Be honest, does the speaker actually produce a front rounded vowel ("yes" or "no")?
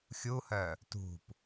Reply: yes